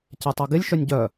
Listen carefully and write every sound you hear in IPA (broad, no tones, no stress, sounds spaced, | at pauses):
c ɛ tˤ ɛ ɡ ɪ lʲ ʃ œ nʲ ɟ œ